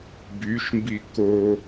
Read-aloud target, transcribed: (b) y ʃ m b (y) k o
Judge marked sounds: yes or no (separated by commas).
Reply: yes, no